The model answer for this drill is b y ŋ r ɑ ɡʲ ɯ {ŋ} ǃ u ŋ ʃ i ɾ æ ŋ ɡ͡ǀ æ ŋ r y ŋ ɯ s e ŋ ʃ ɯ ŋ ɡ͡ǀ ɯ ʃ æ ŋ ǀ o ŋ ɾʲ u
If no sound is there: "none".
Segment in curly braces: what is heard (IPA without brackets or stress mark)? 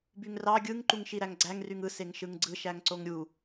ŋ